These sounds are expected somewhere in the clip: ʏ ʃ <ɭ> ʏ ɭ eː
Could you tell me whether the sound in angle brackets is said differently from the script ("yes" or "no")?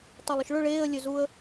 no